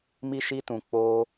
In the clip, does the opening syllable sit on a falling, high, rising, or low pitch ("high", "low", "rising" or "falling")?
high